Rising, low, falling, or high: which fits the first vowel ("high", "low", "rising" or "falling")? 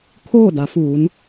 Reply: falling